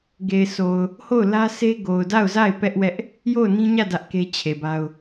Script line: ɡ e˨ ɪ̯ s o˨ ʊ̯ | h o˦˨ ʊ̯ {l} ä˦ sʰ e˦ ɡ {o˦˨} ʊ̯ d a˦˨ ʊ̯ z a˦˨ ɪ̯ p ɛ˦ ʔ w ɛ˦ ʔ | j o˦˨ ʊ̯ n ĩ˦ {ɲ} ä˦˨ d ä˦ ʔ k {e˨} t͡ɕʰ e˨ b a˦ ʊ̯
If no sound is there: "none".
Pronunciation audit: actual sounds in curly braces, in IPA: l, o˨, ɲ, e˦

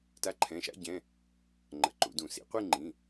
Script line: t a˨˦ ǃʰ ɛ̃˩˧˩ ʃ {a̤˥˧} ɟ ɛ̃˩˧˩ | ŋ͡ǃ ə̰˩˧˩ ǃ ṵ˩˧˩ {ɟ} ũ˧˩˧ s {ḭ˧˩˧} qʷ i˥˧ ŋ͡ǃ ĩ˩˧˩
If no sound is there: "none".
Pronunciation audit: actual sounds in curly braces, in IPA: a̰˥˧, d, ḭ˨˦

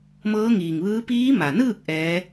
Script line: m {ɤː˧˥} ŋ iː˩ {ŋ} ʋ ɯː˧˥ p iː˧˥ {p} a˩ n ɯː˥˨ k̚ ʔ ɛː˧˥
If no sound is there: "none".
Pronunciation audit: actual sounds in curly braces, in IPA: ɤː˧˥, ŋ, m

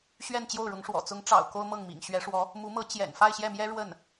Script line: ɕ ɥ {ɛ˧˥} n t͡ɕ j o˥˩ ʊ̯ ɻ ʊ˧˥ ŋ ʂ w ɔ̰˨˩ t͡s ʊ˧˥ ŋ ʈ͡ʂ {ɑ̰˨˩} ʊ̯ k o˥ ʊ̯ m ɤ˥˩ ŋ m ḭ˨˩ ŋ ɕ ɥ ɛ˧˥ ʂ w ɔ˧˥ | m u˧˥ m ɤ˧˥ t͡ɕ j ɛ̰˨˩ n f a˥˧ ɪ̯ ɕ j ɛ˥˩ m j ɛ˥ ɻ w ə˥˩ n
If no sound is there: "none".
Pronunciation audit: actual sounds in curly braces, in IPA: ɛ˥˧, ɑ̰˨˩

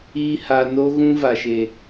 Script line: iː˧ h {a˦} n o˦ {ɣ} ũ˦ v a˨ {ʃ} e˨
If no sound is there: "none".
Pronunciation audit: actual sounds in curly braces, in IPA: a˨, ɣ, ʃ

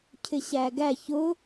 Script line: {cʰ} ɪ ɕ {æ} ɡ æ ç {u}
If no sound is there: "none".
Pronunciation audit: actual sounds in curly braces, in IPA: cʰ, æ, ʊ

